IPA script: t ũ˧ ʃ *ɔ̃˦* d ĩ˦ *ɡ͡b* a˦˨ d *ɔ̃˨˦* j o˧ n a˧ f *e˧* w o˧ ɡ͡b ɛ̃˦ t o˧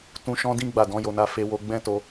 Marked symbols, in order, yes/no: yes, yes, yes, yes

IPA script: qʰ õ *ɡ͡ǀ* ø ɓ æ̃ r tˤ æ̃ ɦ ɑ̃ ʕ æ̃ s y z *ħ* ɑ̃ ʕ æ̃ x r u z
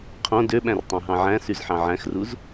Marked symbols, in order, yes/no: no, yes

